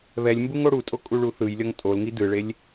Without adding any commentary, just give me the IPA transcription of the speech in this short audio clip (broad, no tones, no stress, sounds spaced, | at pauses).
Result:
β ɛ lʲ m b u ŋ o ɽ u tʼ o kʼ u ɭ u θ ɯ j lʲ ʌ ŋ tʼ o l ŋ i d ɯ ɭ e lʲ